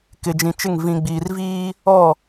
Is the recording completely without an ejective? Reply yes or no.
yes